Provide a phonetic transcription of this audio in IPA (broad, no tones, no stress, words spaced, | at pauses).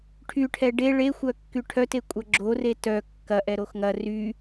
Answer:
ʈʰyʈʰɛ ɖe ɭexʷœkːy ʈʰœtekʷʼɐ ɡ͡ǁore tœ kːɐʔɛ ɾoxŋɐ ry